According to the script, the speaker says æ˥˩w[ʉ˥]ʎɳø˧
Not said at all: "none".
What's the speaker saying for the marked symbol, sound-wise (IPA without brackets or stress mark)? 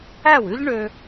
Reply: ʉ˥